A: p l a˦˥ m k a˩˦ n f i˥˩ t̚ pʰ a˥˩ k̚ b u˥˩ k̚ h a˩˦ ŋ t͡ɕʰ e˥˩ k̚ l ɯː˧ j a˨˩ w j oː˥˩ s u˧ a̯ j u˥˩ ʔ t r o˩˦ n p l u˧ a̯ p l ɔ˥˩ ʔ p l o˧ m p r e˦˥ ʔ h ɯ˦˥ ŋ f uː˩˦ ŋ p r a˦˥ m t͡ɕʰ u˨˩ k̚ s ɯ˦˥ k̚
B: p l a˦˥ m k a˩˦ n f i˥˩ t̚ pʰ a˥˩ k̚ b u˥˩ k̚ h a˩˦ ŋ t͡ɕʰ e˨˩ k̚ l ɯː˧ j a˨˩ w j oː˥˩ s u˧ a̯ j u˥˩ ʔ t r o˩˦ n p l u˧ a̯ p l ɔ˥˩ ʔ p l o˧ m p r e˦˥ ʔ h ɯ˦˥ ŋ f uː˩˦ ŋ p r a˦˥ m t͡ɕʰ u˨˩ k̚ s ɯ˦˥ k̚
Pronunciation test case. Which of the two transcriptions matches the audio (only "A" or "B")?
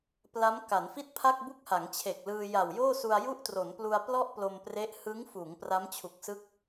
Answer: B